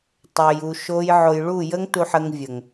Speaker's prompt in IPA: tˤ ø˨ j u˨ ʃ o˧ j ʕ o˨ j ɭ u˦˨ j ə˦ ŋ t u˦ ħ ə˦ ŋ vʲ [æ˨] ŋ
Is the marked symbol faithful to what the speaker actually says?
no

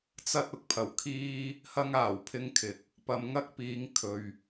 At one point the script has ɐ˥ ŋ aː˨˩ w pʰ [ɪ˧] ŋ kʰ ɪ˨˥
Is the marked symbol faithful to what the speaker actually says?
no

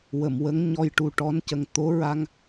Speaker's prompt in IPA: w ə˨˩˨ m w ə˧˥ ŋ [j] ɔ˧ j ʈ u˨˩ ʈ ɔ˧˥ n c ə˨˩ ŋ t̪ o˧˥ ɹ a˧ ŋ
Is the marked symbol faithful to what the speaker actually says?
no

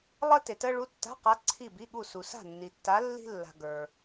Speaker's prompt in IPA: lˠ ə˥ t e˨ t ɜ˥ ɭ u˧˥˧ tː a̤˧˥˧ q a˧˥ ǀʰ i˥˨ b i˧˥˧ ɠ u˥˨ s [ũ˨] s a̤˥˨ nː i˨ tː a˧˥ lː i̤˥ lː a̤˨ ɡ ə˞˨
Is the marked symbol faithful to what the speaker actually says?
no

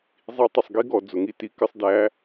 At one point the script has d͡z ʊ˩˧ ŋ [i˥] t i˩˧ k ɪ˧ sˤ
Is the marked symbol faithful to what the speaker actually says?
yes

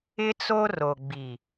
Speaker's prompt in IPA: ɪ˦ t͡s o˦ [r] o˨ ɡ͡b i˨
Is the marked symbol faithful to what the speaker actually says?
yes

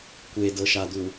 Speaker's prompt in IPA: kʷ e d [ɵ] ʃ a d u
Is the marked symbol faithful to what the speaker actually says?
no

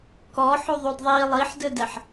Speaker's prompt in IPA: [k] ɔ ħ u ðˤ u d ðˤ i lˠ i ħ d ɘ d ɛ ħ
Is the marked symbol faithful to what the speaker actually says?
yes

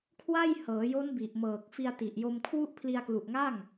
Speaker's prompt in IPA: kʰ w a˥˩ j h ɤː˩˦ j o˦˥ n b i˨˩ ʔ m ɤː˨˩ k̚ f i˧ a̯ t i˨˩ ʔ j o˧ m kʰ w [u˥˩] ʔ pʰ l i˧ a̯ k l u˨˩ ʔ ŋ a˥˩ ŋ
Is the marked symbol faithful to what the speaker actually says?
yes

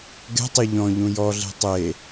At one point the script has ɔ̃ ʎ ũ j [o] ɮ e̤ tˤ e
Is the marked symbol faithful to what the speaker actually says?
no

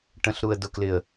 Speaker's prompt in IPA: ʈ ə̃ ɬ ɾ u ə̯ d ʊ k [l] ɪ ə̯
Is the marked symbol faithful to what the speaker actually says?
yes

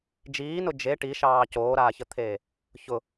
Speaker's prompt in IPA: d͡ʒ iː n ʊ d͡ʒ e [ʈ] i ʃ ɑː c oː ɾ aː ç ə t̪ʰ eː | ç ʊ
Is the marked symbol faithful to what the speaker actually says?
yes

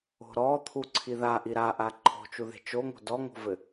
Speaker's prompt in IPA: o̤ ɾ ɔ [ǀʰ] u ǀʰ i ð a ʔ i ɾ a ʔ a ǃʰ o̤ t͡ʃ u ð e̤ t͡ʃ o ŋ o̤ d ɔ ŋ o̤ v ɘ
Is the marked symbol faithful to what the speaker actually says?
no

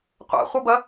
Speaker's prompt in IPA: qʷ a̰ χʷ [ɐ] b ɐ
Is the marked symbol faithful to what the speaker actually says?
no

